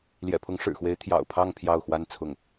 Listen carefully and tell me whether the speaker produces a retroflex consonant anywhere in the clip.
yes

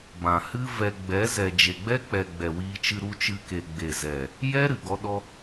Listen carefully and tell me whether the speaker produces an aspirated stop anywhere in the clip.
no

